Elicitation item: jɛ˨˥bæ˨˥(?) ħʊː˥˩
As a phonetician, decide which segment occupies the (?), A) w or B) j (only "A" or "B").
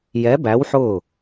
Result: A